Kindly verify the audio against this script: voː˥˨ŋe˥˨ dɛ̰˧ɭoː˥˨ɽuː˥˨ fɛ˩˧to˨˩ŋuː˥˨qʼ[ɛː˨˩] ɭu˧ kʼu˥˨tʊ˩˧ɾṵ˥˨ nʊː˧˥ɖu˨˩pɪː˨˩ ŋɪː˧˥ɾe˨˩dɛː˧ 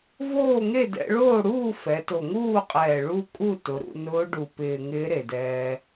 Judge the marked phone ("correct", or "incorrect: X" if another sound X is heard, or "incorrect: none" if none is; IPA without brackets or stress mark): correct